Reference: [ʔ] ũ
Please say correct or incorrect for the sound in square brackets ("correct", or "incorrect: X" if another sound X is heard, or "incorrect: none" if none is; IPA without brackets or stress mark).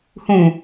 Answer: incorrect: h